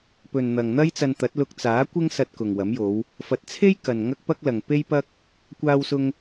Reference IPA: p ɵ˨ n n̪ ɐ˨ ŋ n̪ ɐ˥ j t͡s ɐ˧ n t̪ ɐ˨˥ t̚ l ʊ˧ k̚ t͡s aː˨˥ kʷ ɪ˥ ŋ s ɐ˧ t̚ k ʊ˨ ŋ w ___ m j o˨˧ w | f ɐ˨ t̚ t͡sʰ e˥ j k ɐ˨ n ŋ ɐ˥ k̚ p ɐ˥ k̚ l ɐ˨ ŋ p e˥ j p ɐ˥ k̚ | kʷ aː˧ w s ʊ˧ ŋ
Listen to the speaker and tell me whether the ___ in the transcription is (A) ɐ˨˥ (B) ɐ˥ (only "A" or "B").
A